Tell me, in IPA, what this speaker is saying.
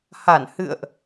h a˧˩ n h ɨ̰˧˨ ə̯ ʔ

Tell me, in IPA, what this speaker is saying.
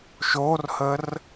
ʃ o r h ə r

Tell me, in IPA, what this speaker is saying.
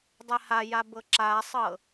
dˤ ɛ h a j a b ɤ ǁ a sˤ ɤ

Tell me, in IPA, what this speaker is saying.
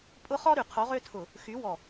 pʼ ʊ˦ χ ɔ˦ ɾ y˨ qʰ o˨˦ ʁ ø˦ tʰ ʊ˨ | x y˨˦ w ɔ˨

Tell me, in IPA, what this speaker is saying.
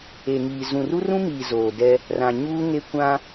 e˨ ŋ iː˨ z ũ˨ r u˦ r ũ˦ m iː˨ z oː˨ d ɛ˦ | r ã˨ ɲ uː˦ ŋ e˦ kʷ ã˦

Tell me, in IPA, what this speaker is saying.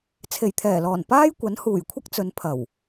t͡sʰ e˨˩ j t̪ʰ ɛː˨˩ l ɔː˨˩ n p aː˥ j kʷ ɐ˨˥ n h uː˨˩ j kʷʰ ɐ˥ k̚ t͡s ɵ˨˧ n pʰ ɐ˨˩ w

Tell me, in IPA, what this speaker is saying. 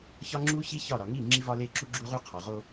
ç ɒ˦ ŋ͡ǁ u˦ ç i˦ ç ɒ˦˨ ɾ ɒ˨ ŋ i˦˨ ŋ͡ǁ i˦ v ɒ˦ l e˦ ǁ u˦ ɡ͡ǁ u˦ ʁ u˦ qʰ ɒ˨ ʁ o˦

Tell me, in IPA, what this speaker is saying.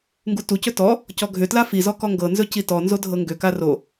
ŋ ɡ u t u c ɵ t ɔ | c ɔ ɡʱ ʏ t l a f i z ɔ k ɔ ŋ ɡ ɤ n z ɵ c i t ɔ n z o dʱ ɤ ŋ ɡ ʏ k a r o

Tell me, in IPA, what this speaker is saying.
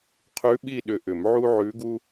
qʰ ʉ˧˥ ɓ i˥˧ ɗ ʏ˧˥ ʔ ʏ˨˩˦ m ʕ u˥ ʕ ʉ˧˥ ɡ u˥

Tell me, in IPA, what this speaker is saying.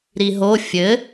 ɾ i ɦ o fʲ ɘ

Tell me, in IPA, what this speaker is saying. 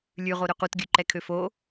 lʲ ʉ ʁ o ɾ ø q u t ɡʲ ʉ ǃ ɛ kʰ ø f o

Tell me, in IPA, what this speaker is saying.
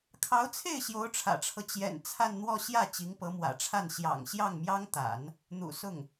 kʰ ɑ˧˥ ʊ̯ t͡sʰ e˥˩ ɪ̯ ɕ j o˧˥ ʊ̯ ʈ͡ʂʰ ä̰˨˩ ʈ͡ʂʰ ɤ˦ t͡ɕ j ɛ̰˨˩ n t͡sʰ a˥˧ n n̪ w ɔ˥˧ ɕ j ä˥˩ t͡ɕ i˧˥ ŋ p ɤ˧˥ m w ä̰˨˩ ʈ͡ʂʰ a˥˩ n ɕ j ɑ̰˨˩ ŋ ɕ j ɑ˥˩ ŋ m j ɑ˥ ŋ t̪ a̰˨˩˦ n | n̪ ṵ˨˩ s ʊ˥˩ ŋ

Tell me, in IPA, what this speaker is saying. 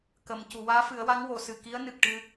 k ə˨˩˨ m c u˨˩˨ w aː˧˥ f ɨ˨˩˦ ə̯ w a˧˥ ŋ w o˨˩˨ s ɨ˨˩ k i˧˥ ə̯ n ɨ˨˩ k̚ ʈ ɨ˧

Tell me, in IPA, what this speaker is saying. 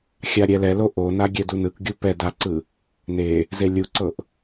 xʲ a ɾʲ ɛ l ɛ l o ʔ o n a ɡʲ ɛ d u n ɯ k ɡʲ u p ɛ d a ǀ ɯ | n e | z e lʲ u ǀ ɤ ʔ

